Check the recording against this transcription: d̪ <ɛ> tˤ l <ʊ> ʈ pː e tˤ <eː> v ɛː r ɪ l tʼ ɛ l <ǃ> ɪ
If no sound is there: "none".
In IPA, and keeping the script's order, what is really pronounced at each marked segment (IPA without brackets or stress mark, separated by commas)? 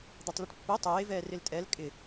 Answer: ɛ, ʊ, eː, kʼ